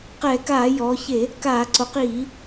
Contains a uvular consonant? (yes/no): yes